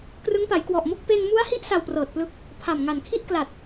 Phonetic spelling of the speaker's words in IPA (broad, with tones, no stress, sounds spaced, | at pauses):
k r ɯ˦˥ ŋ p a˩˦ j k w ɔ˨˩ ʔ m o˥˩ k̚ p e˧ n m u˦˥ a̯ h i˦˥ ʔ s a˧ w p r ɤː˨˩ t̚ p l ɯ˦˥ k̚ | pʰ a˨˩ m ŋ a˨˩ n kʰ i˥˩ ʔ k l a˨˩ t̚